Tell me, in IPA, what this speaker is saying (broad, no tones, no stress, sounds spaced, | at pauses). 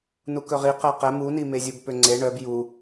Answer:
n u k ɵ ʁ i q ɛ q ɛ m u n i m e zʲ u b p ø ŋ͡ǀ e ɳ œ b j u